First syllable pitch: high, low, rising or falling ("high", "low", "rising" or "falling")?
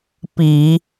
low